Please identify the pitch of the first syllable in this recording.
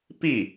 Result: falling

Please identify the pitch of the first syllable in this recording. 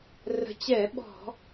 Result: rising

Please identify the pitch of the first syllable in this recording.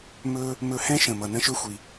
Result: high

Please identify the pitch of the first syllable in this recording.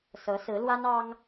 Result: rising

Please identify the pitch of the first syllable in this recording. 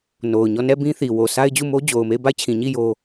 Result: low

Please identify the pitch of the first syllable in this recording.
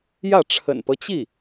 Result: falling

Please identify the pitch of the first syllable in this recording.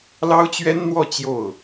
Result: high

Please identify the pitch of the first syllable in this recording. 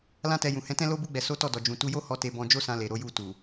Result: high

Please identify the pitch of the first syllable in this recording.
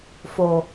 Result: low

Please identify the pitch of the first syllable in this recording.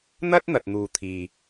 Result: high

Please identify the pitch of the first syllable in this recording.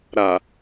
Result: low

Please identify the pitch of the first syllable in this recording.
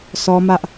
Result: high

